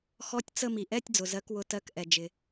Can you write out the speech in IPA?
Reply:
xɔ˧˥˧tʲ t͡sə˥˧ mi˩ʔɛ˧˥˧tʲd͡zʊ˩ zɜ˨˥kwʊ˨˥ tɜ˧˥˧kʔɛ˩ d͡ʒɪ˩

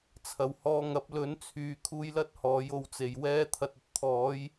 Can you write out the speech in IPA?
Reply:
t͡sʰɐ˨˩w hɔː˧ŋɐ˨˥p̚ lɵ˨˥nt͡sʰyː˨˧ kʰuː˧jlɐ˥t̚ hɔː˨˥jo˧w t͡se˨˩jwɛː˥ t̪ʰɐ˨t̚ɐ˨t̚t̪ʰɔː˨˥j

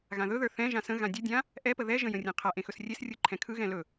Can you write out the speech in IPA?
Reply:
ɣãðɵðə˞ θɛ̃ʒã sə̃ ɣãdʲədʲã | ʔɛpə ðɛʒə̃ jə̃rʲẽqʰaʔẽ xɵsrʲesrʲɯ ǃʰɛ̃kʰɯɣɛ̃ lɵ

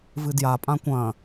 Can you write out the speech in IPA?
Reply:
vɨdja pʼãkʷɐ̃

